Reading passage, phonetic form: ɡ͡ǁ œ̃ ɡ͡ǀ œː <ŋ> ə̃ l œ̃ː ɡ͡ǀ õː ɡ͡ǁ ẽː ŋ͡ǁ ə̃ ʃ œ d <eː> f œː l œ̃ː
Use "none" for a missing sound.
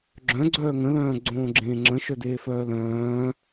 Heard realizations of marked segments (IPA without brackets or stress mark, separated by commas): ŋ, eː